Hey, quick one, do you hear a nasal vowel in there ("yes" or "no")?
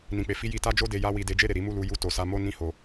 yes